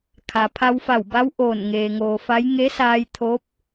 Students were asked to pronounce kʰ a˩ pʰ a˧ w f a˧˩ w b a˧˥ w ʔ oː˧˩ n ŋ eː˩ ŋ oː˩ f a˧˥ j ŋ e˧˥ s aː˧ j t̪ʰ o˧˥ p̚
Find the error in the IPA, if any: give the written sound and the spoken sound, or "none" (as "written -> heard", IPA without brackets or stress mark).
none